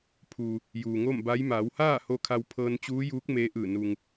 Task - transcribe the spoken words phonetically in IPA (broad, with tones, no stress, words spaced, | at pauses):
pʰuː˩ | juː˩ŋo˥˨m ba˧˥j maː˩˧whaː˥˨ho˧ kʰa˧wpʰɤː˧nt͡ɕuː˧˥juː˧˥k̚ meː˧˥ʔɯː˧˩ nu˩ŋ